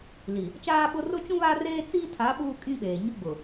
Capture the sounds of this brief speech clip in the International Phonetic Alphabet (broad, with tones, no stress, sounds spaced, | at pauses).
l i˨ | t͡ʃ aː˦ ɓ ʊ˦ r ʊ˦ t͡ʃ ũ˦ β a˦ r eː˦ t͡s iː˦ tʰ a˨˦ ɓ uː˦ kʼ ĩ˦ ɓ eː˨ ɲ ʊ˦ ɡ͡b ʊ˨